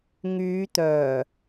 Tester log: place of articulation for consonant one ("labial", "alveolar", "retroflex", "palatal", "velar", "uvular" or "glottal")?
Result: velar